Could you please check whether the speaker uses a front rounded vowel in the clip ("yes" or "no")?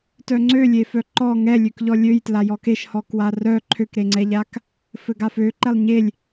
yes